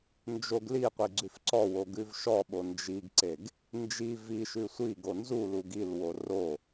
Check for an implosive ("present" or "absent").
present